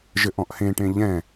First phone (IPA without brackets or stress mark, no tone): ʒ